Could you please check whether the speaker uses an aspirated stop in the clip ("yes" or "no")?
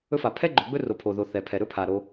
yes